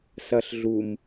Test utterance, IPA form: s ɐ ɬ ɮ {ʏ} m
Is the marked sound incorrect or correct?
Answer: incorrect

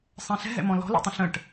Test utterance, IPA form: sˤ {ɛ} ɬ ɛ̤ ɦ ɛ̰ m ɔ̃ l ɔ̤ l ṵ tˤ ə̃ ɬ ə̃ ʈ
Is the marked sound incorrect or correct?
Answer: incorrect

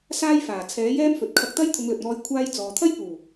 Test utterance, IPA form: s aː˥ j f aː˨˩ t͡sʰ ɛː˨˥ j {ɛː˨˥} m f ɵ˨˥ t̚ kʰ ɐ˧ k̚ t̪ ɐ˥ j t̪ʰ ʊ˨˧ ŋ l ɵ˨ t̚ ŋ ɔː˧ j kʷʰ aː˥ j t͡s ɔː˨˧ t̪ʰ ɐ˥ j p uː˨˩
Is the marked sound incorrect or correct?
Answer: incorrect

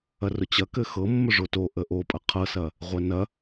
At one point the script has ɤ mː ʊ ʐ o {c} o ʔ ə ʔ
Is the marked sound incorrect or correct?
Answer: incorrect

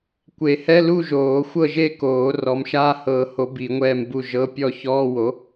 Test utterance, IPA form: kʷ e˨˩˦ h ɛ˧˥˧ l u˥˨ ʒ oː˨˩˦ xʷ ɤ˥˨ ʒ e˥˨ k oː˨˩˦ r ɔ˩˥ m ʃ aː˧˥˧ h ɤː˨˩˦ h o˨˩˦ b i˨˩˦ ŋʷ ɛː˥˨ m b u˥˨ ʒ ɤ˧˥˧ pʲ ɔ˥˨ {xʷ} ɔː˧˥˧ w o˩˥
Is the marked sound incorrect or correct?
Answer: incorrect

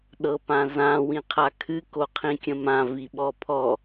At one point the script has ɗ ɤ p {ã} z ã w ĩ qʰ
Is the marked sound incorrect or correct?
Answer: correct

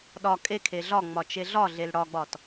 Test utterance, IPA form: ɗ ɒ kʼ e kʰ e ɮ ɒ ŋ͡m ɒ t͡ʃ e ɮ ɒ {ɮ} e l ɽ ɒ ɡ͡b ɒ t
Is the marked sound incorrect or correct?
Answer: correct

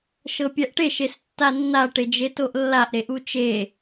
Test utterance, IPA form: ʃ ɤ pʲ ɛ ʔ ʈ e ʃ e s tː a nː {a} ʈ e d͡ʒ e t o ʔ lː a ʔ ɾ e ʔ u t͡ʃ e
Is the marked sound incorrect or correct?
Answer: correct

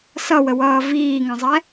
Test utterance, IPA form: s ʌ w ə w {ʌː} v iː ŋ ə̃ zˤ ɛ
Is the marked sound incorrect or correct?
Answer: correct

